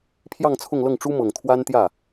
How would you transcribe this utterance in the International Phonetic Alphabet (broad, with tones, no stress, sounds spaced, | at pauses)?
pʰ j ɑ˥˧ ŋ t͡sʰ ʊ˥˧ ŋ l ɤ˥˩ ŋ ʈ͡ʂ u˥ m ɤ˨˩ ŋ t̪ʰ w a˥ n t̪ j ä˥˩